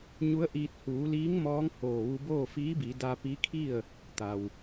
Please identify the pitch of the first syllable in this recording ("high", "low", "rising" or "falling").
rising